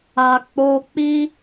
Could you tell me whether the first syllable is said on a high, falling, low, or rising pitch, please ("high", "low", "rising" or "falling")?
low